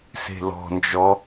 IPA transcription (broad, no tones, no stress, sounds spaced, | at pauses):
s e̤ l ɔ̤ n d͡ʒ ɔ